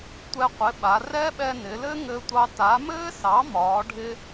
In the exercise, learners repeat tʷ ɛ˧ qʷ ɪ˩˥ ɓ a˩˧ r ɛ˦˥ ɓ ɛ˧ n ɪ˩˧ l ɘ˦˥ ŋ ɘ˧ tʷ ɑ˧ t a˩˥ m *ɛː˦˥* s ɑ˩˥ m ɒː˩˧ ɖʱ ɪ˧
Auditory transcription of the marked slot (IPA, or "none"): ɘː˦˥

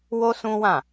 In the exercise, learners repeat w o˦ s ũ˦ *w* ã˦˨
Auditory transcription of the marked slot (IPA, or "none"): w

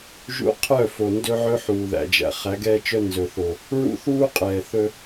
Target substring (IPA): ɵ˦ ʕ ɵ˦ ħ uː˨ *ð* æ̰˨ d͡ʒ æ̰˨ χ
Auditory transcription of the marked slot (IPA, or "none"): ð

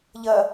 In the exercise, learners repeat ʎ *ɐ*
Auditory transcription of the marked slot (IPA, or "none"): ɐ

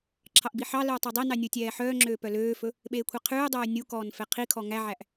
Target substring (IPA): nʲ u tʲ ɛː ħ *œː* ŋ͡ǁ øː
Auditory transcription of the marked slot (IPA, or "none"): œː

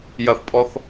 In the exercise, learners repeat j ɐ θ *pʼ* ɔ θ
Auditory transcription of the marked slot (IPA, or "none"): pʼ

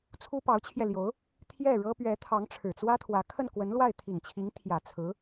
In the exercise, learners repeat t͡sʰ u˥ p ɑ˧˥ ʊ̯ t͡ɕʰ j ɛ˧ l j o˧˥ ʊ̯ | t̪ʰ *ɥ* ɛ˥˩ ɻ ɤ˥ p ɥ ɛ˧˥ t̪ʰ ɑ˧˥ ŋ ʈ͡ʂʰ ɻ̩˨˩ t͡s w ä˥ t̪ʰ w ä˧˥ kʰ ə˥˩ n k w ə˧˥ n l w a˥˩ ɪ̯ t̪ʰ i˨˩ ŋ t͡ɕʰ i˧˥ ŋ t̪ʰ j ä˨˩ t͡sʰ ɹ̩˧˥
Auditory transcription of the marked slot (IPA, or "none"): j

